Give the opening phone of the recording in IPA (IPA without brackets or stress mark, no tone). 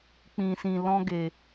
k͡p